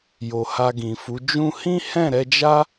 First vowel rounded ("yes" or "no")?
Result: yes